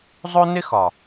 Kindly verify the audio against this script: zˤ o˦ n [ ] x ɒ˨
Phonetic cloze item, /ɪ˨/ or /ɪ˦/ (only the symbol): ɪ˦